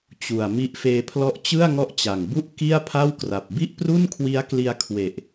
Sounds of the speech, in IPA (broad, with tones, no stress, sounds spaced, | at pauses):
t͡ɕ u˨˩ a̯ m i˦˥ ʔ f eː˧ pʰ l ɔ˦˥ ʔ t͡ɕ ɯ˥˩ a̯ ŋ ɔ˦˥ ʔ t͡ɕ a˨˩ ŋ b u˥˩ ʔ k i˥˩ a̯ pʰ a˥˩ w k r a˨˩ p̚ b i˥˩ ʔ p r u˥˩ n kʰ w i˦˥ a̯ k l i˧ a̯ kʰ w e˨˩ ʔ